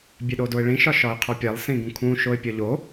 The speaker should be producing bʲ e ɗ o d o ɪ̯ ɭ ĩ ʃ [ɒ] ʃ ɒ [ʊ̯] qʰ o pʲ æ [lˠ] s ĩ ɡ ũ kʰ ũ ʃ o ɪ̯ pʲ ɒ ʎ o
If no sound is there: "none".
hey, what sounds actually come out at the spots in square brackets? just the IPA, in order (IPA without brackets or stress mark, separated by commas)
ɒ, ɪ̯, lˠ